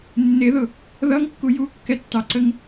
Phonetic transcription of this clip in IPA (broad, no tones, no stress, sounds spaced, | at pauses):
nː ɪ ð ʊ | ð ʌ ŋ kː u j u kː ɛ tː ɑ ǀ ə ŋ